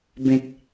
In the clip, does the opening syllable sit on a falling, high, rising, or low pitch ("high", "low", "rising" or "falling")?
low